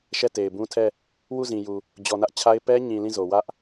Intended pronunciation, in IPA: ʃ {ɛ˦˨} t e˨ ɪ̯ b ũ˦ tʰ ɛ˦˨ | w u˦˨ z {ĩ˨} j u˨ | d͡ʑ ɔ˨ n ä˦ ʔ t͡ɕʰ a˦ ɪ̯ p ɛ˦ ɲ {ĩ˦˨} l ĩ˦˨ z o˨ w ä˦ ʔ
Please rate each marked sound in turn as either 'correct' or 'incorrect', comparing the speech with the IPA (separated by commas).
correct, correct, incorrect